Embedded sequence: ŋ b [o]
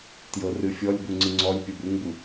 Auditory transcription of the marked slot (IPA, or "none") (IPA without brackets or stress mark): u